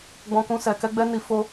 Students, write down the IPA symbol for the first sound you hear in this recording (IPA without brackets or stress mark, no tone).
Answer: ɡ͡b